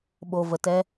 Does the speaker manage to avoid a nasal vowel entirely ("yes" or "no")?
yes